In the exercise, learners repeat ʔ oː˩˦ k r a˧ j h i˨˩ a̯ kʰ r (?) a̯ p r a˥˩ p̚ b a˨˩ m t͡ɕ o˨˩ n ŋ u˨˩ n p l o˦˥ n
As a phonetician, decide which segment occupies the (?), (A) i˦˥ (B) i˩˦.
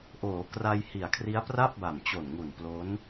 A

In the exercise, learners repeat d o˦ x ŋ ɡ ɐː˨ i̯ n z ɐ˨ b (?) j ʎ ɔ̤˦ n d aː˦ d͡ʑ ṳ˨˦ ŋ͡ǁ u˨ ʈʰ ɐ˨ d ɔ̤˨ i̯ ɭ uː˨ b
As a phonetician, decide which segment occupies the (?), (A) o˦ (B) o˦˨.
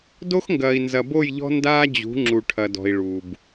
B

